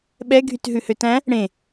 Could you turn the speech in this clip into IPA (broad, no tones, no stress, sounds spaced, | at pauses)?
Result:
ɓ ɛ ɡʱ y t ɦ ʉ h ø t æ̃ | ɽ ẽ